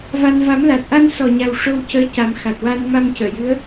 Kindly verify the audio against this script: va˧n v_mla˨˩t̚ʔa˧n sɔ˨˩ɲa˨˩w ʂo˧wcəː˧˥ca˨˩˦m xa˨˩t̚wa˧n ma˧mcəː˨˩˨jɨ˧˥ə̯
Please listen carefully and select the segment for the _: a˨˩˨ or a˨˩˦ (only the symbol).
a˨˩˦